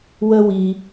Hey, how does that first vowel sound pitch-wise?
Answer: high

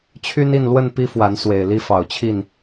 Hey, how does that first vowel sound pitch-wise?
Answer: high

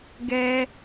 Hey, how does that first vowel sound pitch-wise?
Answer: high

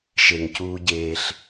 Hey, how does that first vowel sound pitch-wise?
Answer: low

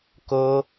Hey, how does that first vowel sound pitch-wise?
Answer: high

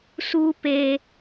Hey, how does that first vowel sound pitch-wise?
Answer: high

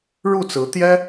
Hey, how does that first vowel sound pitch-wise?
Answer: falling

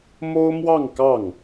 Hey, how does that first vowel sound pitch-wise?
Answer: high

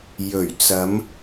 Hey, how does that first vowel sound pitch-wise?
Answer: low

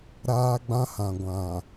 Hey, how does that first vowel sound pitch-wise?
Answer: high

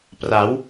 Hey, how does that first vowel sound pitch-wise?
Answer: rising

